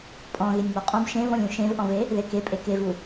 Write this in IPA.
pʼ ɔ̃ ɣ e nʲ m ɔ qʼ ɔ̃ b ʃ ẽ v ɔ̃ lʲ ũ ʃ ẽ v ʔ ɔ̃ v e | ð e k e pʼ e k e v u

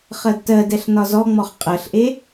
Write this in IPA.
χ ɜ d t ɜ d ɛ ɬ n ɒ z ɔ ŋ͡m ɔ χ qʼ ɜ ɬ ʔ e

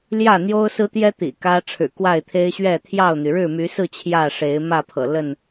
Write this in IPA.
l j ä˥˨ n̪ j o˦ ʊ̯ s ɹ̩˦ t̪ j ɛ˦ t̪ ḭ˨˩ k ä˦ ʈ͡ʂʰ ɻ̩˨˩ k w a˥˨ ɪ̯ t̪ʰ e˦ ɪ̯ ɕ ɥ ɛ˥˨ t̪ʰ j ɑ˥˨ ʊ̯ n̪ y˩ ɻ ɻ̩˥˨ m y˨˦ s ɹ̩˥˨ t͡ɕʰ j ä˥˨ ʂ e˨˦ ɪ̯ m ä˥˨ pʰ ɤ̰˨˩ l ə˥˨ n

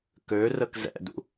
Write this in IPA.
k ø r ə k z ɛ̰ d ṵ

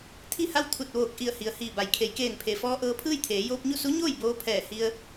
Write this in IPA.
t̪ʰ i˥˨ h a˥˨ w t̪ʰ u˧˩ t̚ ʋ oː˧˩ k̚ ʔ i˧˩ ə̯ h i˩ ə̯ h iː˧˩ b a˩˧ j kʰ e˩˧ j k eː˧˩ n pʰ e˩ f ɔː˧ ʔ ɤː˧ pʰ ɯː˥˨ j t̪ʰ eː˩˧ j oː˧ p̚ ɲ u˥˨ s u˧˥ ɲ oː˥˨ j b oː˧ pʰ ɛː˧˩ h i˧ ə̯

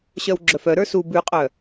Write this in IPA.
ɕ œ w ɡ͡ǁ œ f œ ɾ ə˞ s u b ʉ qʼ œ

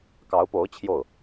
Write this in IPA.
k ɑ˧˥ ʊ̯ p o˧˥ ʊ̯ t͡ɕʰ j o˥˩ ʊ̯

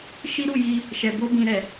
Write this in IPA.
ʃ i˦ ɾ u˦˨ j i˧ | ʃ ɛ˨ b o˧ b ĩ˨ ɾ ɛ˨

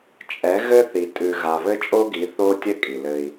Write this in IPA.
t͡ʃʼ ɛ˨˦ ɣ ɘ˦ θ i˨ tʼ ʉ˨ ɣ a˨ β ɘ˦ t͡ʃʼ o˦ ɡ i˨˦ θ o˦ tʲ ɘ˦ kʼ i˨ l ɘ˦ i̯

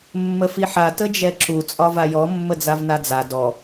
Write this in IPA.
mː ə f i ħ a t ə d͡ʒ ɛ ǁ u t͡sʼ ɒ v a j ɔ mː ə d͡z a v n a d͡z a d ɔ

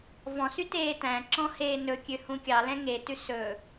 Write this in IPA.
v ɔ̃ s y t eː t æ̃ ǁ ɔ̃ h eː n ɵ kʲ ø h ũ kʲ ɑ l ɛ̃ ŋ e t ʉ s ɵ

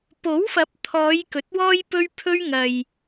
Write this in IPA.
p o˨˥ w f ɐ˨˥ p̚ t̪ʰ ɔː˨˧ j k ɵ˨ t̚ w ɔː˥ j p ɵ˥ ɥ pʰ ɵ˥ ɥ ŋ ɐ˨ j

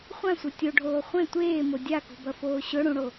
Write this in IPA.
χʷ ã sʷ e tʲ o ɖʱ oː χʷ ẽ tʷ eː m o dʲ a k ṳ b ɐ f oː ɕ ɵ ɽ ũ ɽ o

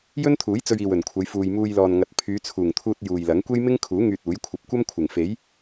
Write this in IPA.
j ɵ˥ n t̪ʰ uː˨˥ j t͡s ɵ˧ ɥ iː˨ w ɵ˨˩ n kʷʰ ɐ˨˧ j f uː˧ j m uː˧ j l ɔː˨ n ŋ ɐ˨ t̚ pʰ yː˨˧ t͡sʰ uː˨˩ ŋ t̪ʰ uː˧ t̚ j uː˨ j l ɐ˨˥ ŋ kʷ e˥ j m ɪ˥ ŋ kʰ uː˨˥ ŋ yː˧ t̚ uː˨˥ j kʷʰ ɐ˧ p̚ kʷ ɐ˥ m kʷʰ ɪ˨˩ ŋ f e˨˥ j

